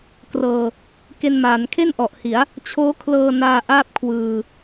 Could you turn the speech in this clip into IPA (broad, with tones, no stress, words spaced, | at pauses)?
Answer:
krɤː˧ | ke˧nmaː˩˦nkʰe˥˩n ʔɔ˨˩ʔhi˩˦a̯ | t͡ɕʰoː˦˥kʰlɤː˧naː˧ ʔaː˥˩p̚kʰwɯː˧